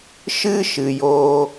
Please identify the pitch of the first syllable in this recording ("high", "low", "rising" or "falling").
high